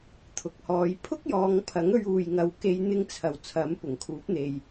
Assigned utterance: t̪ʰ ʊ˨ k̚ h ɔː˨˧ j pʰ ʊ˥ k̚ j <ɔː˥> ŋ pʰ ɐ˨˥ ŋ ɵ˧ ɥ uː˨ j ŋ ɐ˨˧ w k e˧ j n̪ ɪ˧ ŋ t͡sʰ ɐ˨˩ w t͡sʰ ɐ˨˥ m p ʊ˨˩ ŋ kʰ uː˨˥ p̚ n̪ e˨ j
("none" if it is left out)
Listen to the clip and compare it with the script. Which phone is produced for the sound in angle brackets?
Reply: ɔː˨˧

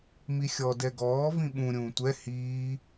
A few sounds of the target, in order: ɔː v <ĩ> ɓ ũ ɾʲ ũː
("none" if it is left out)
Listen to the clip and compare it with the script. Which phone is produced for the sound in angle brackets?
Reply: ĩ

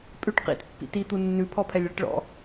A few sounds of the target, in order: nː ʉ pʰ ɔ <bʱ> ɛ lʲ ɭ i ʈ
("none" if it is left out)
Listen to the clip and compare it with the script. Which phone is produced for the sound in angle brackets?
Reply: pʰ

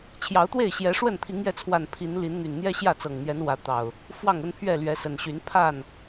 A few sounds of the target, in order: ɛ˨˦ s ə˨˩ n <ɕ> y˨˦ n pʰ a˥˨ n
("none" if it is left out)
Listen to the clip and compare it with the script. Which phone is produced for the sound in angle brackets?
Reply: ɕ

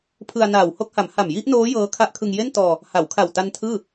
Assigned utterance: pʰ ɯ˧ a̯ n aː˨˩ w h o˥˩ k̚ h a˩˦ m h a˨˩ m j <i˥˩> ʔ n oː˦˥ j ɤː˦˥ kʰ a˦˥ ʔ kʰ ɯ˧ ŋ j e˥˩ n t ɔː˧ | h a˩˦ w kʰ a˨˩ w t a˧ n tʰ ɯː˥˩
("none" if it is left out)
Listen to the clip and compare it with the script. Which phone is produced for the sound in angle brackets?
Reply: i˥˩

